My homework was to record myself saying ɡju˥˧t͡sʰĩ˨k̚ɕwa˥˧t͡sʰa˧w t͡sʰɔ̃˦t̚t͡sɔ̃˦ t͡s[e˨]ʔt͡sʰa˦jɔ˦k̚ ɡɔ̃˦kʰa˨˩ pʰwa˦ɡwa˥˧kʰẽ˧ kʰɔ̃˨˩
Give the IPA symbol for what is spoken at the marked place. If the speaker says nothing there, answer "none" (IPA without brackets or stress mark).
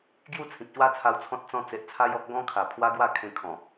e˨